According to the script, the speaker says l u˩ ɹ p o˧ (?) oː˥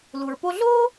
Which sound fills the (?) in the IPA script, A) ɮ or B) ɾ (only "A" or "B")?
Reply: A